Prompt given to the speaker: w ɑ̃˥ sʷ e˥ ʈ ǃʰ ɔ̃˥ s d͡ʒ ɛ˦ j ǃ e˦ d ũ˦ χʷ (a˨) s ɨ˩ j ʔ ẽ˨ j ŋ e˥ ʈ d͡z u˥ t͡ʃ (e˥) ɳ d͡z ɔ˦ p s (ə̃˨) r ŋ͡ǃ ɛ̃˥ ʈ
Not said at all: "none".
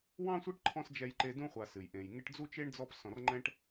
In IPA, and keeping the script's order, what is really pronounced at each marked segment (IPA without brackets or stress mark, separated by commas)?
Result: a˨, e˥, ɔ̃˨